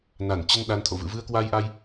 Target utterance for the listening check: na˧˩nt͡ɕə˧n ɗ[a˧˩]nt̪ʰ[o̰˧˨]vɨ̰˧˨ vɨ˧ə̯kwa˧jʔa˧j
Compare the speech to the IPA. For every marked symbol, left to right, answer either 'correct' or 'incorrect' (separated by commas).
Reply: incorrect, correct